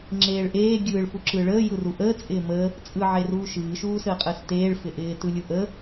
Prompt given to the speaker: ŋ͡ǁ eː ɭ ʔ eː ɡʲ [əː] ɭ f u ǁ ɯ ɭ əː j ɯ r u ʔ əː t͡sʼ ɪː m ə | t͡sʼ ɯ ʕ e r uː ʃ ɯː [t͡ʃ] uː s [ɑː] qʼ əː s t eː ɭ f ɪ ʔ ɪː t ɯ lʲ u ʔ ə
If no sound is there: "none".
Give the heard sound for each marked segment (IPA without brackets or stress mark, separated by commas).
ɯː, ʃ, əː